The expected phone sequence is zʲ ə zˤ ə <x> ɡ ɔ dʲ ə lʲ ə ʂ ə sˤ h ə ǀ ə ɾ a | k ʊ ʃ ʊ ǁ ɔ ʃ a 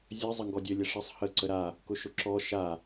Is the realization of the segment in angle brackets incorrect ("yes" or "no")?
yes